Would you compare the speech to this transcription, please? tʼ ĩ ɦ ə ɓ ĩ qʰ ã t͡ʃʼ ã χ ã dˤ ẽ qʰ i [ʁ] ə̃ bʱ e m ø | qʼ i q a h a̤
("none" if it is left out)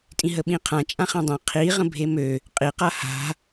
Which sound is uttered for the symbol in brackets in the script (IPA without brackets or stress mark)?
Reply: ʁ